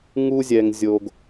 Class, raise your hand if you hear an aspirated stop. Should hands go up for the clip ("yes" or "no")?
no